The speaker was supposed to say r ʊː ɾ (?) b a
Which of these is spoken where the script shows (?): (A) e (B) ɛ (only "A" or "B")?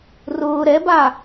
B